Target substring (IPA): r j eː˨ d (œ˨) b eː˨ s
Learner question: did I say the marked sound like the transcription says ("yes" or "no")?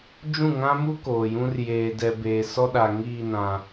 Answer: no